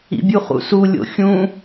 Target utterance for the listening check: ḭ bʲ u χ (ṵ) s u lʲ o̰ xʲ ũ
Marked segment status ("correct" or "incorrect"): correct